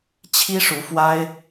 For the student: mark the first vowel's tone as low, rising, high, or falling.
high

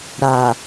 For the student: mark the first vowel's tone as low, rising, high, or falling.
low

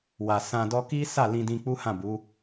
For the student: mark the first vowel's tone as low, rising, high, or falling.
low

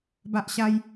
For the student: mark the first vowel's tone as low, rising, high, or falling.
high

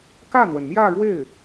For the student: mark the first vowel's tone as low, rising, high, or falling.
falling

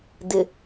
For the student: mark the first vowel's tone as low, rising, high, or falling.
low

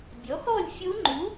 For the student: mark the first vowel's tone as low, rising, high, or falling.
rising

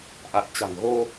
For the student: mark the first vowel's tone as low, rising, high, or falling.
low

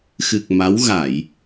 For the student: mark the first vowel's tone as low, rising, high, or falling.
low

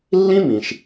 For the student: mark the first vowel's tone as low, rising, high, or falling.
high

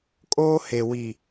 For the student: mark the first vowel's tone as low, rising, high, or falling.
high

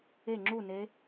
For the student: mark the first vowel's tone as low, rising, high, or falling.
falling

